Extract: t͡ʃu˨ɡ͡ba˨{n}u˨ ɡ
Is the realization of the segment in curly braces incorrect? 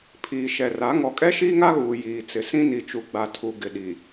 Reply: yes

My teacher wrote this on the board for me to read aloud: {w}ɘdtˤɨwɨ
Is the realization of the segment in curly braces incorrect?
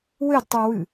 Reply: no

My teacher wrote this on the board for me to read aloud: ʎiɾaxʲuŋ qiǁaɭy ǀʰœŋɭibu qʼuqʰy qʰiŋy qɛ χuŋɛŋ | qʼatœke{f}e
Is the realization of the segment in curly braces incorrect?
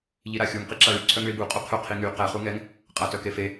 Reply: no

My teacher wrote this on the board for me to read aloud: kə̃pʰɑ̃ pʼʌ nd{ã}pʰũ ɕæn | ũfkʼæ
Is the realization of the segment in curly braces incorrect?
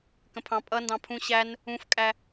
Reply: yes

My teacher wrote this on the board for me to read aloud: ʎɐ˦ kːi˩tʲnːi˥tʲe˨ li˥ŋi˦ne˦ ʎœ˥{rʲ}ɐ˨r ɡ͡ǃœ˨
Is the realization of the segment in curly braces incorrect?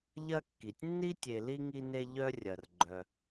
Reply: no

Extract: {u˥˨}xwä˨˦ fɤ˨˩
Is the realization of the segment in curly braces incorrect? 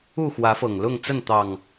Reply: no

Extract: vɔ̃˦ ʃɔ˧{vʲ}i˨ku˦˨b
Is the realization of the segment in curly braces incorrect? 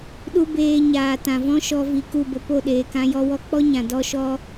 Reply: yes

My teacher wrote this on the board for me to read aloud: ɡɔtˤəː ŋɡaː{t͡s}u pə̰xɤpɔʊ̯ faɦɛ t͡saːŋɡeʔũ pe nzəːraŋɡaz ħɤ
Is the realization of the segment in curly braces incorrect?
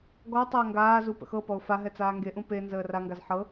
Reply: yes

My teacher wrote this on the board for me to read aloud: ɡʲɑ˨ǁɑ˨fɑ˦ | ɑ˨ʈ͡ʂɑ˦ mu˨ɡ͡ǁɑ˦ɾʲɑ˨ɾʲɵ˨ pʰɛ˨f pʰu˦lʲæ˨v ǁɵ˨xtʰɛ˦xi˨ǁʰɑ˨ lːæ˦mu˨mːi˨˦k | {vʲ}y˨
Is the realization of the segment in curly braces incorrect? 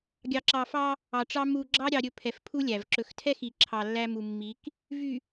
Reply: yes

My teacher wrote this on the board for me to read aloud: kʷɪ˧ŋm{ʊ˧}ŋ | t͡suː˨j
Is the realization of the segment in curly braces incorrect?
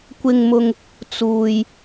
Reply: no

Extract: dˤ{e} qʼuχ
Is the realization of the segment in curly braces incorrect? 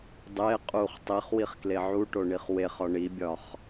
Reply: no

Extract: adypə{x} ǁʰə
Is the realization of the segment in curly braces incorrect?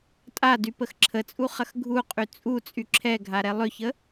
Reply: no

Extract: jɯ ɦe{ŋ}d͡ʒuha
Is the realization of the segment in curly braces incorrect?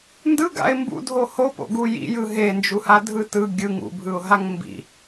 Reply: yes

